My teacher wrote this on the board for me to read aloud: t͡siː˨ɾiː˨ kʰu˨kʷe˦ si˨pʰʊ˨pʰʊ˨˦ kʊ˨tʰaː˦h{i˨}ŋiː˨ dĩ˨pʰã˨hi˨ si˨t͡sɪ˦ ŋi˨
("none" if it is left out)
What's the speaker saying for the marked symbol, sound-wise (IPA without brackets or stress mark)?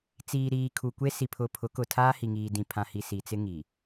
i˨